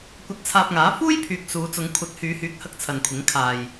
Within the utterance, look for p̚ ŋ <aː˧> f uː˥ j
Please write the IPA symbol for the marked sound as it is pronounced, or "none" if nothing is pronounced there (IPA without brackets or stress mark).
aː˨˥